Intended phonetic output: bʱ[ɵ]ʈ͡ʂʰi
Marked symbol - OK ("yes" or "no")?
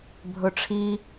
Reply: yes